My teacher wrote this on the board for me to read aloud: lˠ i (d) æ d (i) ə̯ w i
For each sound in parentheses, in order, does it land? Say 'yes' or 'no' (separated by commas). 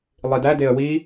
yes, no